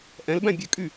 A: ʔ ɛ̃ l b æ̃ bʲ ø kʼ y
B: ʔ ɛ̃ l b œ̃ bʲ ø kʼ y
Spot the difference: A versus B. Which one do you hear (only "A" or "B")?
A